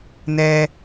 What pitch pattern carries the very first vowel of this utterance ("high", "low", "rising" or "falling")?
low